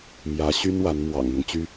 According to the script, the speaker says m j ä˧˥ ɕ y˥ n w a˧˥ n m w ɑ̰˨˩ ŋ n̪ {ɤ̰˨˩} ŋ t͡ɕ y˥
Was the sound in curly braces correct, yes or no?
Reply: no